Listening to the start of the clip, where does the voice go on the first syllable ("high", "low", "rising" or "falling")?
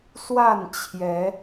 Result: falling